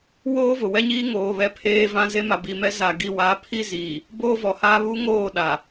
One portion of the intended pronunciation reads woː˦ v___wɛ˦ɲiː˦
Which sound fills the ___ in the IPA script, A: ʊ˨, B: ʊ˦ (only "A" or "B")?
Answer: A